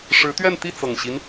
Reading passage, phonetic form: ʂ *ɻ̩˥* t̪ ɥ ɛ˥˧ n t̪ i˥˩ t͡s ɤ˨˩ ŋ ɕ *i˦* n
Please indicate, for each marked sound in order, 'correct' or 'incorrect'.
incorrect, correct

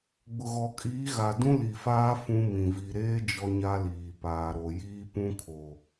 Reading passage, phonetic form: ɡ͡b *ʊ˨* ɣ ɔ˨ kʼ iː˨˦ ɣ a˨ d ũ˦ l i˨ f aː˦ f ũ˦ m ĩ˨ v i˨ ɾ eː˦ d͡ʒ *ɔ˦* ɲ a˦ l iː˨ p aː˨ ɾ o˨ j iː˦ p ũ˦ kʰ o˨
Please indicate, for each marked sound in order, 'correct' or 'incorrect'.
correct, correct

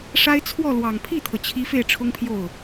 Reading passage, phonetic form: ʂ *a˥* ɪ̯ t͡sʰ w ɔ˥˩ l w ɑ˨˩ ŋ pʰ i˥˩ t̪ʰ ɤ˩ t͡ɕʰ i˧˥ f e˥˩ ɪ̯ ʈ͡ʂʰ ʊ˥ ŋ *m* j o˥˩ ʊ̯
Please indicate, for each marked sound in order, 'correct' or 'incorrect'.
correct, incorrect

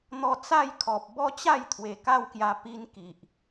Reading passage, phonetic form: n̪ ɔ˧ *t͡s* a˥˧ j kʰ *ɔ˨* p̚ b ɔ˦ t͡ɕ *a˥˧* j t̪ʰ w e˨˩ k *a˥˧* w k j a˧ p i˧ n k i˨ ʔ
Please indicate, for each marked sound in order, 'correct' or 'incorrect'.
correct, correct, correct, correct

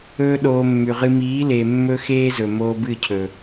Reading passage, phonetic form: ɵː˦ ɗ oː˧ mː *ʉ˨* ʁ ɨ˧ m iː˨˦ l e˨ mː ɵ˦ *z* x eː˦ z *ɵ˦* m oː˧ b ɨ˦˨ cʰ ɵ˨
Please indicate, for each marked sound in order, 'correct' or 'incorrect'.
correct, incorrect, incorrect

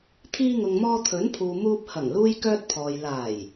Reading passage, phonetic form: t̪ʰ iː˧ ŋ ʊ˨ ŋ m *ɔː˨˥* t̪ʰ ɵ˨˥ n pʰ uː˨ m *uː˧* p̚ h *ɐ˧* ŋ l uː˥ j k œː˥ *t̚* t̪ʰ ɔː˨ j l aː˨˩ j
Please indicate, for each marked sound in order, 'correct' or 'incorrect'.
incorrect, correct, incorrect, correct

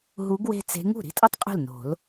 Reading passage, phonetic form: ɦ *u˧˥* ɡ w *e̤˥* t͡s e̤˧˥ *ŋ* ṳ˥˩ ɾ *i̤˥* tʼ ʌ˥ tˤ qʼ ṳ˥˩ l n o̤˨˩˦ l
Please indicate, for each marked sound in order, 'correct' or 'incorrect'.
correct, correct, correct, correct

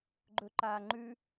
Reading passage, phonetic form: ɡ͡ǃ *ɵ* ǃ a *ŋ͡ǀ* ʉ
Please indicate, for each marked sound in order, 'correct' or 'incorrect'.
correct, incorrect

